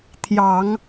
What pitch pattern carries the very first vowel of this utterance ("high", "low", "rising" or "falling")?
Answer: low